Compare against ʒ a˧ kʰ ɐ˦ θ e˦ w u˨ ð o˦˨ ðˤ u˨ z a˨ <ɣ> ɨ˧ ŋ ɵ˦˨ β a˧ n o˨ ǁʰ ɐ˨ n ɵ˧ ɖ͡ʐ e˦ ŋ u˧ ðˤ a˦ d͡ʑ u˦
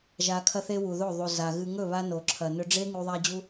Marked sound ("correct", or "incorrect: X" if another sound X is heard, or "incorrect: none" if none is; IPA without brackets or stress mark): correct